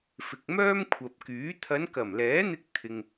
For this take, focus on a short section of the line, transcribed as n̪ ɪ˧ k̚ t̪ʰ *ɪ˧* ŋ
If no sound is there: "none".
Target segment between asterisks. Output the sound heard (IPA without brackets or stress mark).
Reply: ɪ˧